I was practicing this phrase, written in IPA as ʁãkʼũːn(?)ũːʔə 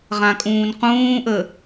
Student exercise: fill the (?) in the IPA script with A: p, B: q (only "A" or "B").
B